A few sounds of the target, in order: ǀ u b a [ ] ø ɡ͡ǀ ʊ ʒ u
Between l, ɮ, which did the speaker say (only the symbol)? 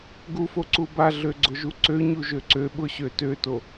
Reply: ɮ